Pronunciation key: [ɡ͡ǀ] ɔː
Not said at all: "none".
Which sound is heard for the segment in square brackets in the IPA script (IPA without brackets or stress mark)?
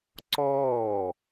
ǀ